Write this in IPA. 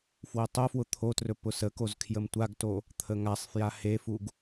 fwʊtˤofwʊ t̪ʰotrɵ pʊsəkoz kʰjəmtʷaɡto | t̪ʰəŋasˤfja hefuɡ

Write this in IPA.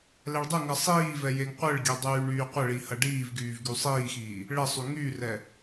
lɛɭdˤəŋɐ sˤiːvɛ jeŋqʷəɭɡʲɛ dˤyːɳyːqʷəɭi hɐɖiːvɡyːv ɡysˤiːxiː | ɭəsˤy ŋyrɛ

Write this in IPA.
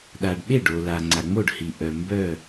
ɗa˩ɖɓe˥˩ɖo˩ la˩ ŋ͡ǀa˩ŋ͡mo˥˩ɖhi˩ ʔœ˩ mbœ˥˩

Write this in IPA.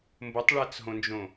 mbotˤɭæt͡sɦõnd͡ʒõ

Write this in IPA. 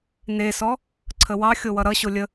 nesɔ | ǀʰəwɑ xʲowʌɾʌ ɕolʲə

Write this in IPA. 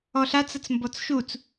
ɔɬat͡s ʌt͡smbɔt͡sʃut͡s

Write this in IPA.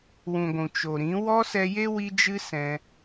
wũ˨ɡʷũ˨ t͡ʃo˨ɾĩ˨˦ wɔ˦sɛ˧je˦ wi˦d͡ʒɨ˦ sɛ̃˧

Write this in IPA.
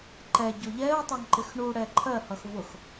ǃɛ ɟʊʎɛʊ̯ tˤɑŋǃɪxɳu ɽɛǃʰɜ hʌxvʊx

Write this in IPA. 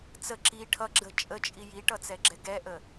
t͡sə ǁi ʈʰʌɡ͡ǁə t͡ʃʼət͡ʃʼi jiʈʌt͡sɛɡ͡ǁɛ ɡɛʔə

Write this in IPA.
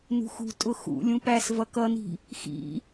nṳxṳ tʼʊxṵ lʲũpæs vʌkʌni̤ | xḭ

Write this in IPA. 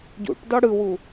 ɟṵʈdɔ ɽɯwu

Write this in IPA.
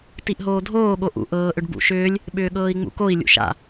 tiʔɦoːdʱoːɠo ʔṵ ʔɤːʔʏɖ bṵʃʏːlʲ | ɓʏːɠɤːi̯ŋ͡mṵkoi̯ lʲṵʃa̰

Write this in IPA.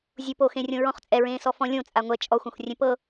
zʲupoxẽrʲõ ɹɔ̃χt͡sʼɛɹẽːsɔ fɔ̃lʲõ t͡sʼaŋʷɛ t͡ʃʼɔxʷãxʷ rʲẽpɤ

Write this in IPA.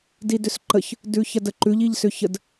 didʏsǃəç | dʉçɐdəǃʉʎ iʎsʏçəd

